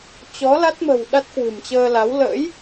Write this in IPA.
t͡ɕ ɔ˨˦ l a˦˥ t̚ m ə̤˨˩ w ɗ a˦˥ t̚ k w ɨ̤˨˩ m t͡ɕ əː˧ l a˨˦ w l ə̰˧˥ j

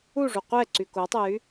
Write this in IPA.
u ʐ u qʷ ɛ ǀ y k o tˤ e j y

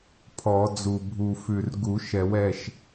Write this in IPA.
pʰ ɔ˨˩˦ d͡z u˧˩ bʱ u˧˩ f ʉ˧˩ r ɡ u˨˩˦ ʃ ɛ˨˩˦ w ɛ˩˧˩ ʃ

